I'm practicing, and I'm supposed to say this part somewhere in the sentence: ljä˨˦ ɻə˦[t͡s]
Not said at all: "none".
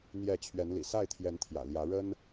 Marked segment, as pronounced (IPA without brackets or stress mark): n